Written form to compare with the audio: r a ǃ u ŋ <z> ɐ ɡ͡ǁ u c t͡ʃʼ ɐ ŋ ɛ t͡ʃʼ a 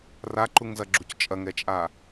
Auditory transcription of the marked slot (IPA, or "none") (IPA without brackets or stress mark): z